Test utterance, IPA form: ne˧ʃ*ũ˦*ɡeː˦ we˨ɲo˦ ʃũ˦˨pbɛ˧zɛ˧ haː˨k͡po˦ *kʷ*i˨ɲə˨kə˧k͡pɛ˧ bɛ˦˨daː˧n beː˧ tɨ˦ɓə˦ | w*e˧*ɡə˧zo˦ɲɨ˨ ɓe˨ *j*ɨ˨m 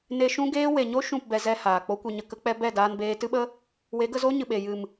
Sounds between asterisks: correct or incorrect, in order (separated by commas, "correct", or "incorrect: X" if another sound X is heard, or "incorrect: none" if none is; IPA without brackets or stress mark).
correct, correct, incorrect: e˨˦, correct